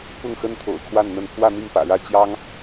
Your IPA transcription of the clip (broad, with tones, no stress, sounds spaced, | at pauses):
p ʊ˥˨ ŋ x ə˦ n t̪ʰ o̰˨˩ ʊ̯ kʰ w a˥˨ n n̪ ə˥˨ n pʰ w ä˥˨ n̪ i˥˨ ŋ p ä̰˨˩ ɻ ä˥˨ t͡ɕ j ɑ˦ ŋ